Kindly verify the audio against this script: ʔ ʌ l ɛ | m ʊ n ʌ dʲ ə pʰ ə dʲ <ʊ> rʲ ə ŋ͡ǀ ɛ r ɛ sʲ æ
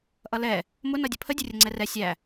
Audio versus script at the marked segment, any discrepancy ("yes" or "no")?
no